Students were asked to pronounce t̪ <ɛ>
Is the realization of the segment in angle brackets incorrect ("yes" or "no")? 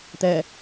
no